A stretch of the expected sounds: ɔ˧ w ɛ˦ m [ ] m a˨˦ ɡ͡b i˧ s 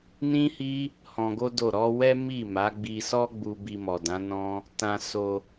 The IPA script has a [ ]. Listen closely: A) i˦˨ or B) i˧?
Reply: A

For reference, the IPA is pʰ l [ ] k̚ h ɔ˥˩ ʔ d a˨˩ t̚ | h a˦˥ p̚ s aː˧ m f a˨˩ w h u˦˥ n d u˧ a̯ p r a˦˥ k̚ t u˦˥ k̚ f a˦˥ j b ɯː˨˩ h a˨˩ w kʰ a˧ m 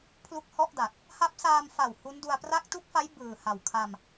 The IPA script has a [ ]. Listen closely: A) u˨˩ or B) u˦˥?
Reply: B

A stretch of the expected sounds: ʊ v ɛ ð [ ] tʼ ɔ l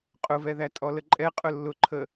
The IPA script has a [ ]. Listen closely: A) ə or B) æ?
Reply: B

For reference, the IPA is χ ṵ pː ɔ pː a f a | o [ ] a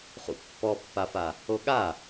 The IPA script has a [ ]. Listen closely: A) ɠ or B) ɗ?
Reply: A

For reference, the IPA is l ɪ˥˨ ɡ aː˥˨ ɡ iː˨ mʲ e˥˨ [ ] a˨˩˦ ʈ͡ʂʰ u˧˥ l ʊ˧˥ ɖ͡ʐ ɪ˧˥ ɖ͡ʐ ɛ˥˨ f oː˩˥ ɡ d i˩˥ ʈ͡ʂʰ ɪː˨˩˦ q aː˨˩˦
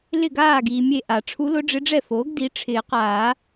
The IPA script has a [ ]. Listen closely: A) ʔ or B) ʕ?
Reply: A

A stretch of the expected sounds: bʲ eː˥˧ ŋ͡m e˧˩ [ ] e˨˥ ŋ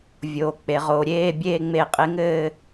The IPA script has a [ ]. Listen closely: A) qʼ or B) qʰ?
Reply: A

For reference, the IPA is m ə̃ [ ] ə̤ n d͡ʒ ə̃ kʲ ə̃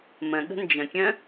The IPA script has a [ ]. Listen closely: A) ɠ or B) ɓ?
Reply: A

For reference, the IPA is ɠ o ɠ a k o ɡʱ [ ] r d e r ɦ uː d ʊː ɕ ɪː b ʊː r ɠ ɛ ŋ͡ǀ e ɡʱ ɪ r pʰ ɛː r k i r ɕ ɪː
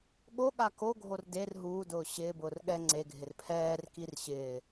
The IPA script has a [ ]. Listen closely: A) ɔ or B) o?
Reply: B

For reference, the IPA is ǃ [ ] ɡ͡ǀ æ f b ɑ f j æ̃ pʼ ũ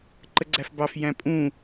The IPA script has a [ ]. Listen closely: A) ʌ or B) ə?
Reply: B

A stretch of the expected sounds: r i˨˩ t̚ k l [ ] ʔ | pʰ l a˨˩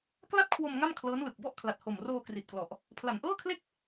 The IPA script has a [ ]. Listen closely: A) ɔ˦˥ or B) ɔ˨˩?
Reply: B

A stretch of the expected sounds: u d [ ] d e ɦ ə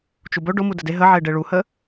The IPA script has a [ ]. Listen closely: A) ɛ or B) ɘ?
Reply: B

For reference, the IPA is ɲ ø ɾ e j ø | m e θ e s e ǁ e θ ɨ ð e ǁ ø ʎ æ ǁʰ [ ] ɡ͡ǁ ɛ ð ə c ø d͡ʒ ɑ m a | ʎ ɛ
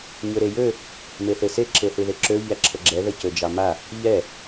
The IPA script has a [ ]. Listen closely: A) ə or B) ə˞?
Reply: A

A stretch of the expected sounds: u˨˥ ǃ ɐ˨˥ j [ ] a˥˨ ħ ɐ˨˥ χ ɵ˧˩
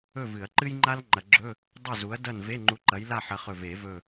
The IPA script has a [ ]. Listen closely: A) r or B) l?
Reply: B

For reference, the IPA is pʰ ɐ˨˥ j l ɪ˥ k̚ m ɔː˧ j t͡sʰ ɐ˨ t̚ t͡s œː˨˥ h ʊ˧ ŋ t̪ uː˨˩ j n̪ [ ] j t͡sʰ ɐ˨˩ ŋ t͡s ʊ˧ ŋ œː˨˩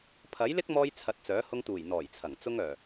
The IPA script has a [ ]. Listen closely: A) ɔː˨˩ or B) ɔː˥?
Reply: A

